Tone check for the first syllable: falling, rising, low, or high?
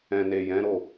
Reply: low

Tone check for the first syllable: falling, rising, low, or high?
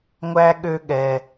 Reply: high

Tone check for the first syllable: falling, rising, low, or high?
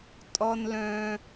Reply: high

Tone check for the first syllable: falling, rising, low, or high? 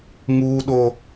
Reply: high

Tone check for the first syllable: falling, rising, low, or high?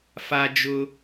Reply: low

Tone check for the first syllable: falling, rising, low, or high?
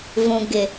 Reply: low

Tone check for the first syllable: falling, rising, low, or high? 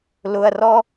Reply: low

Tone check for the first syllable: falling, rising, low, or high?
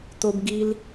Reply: high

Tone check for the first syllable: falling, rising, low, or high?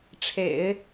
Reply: low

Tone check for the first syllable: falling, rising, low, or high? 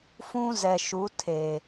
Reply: high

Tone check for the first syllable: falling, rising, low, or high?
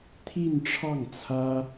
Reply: falling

